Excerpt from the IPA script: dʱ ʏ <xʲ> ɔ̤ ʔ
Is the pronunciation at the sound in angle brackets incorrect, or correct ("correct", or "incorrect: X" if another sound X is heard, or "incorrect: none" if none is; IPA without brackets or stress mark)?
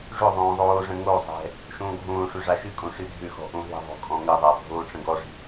incorrect: x